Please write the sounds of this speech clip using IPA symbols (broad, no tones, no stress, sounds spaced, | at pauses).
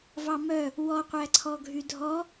v ɑ m œ | w ɔ qʷ æ ǀʰ ɔ ɡʱ y dʱ ɔ